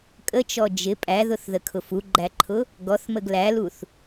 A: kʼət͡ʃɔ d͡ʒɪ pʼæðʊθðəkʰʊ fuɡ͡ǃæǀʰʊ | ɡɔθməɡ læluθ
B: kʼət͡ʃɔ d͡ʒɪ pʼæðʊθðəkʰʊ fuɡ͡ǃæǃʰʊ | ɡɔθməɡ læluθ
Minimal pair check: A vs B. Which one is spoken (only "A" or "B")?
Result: B